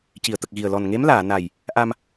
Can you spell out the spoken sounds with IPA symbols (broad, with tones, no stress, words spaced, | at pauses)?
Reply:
ci˨˩˨ə̯t̪ə˨˩k̚ɣi˨˩ə̯ lɔ˨˩nŋe˧˥mlaː˨˩˨na˨˩j | ʔa˧m